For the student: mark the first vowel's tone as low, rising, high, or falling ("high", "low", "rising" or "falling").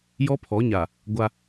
high